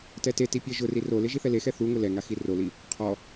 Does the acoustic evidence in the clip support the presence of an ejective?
no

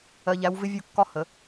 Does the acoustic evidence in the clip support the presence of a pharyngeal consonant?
no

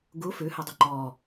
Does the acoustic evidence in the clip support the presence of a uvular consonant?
no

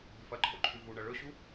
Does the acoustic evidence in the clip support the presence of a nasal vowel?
no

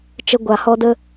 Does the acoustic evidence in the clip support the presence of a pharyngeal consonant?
no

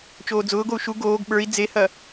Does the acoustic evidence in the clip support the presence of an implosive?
yes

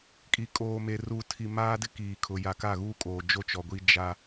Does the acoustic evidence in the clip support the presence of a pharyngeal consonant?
no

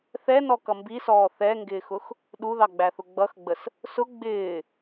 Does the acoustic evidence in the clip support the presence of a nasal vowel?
no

